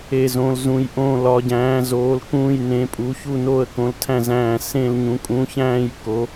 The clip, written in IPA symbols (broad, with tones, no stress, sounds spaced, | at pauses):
e˥˧ z õ˧˥ l z ũ˧˥ j ʔ õː˥˧ l ɒ˧˥ ɟ æ̃ː˧˥ z oː˧˥ l k ũː˥˧ j n ẽ˧˥ pʼ u˧˥ ç u˥˧ n oː˥˧ ə̯ k õ˧˥ l tʰ æ̃˥˧ z æ̃ː˥˧ s ẽ˥˧ l ɲ ũ˧˥ kʼ ũː˧˥ ç æ̃ː˥˧ j k o˧˥